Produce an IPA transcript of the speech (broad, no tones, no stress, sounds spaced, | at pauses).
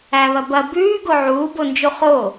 æ β ɐ b ɐ b ʉː ɡ o ʕ uː b o n d͡ʒ u χ o